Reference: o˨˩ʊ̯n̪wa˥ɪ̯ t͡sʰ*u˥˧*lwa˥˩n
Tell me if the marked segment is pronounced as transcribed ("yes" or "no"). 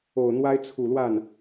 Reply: no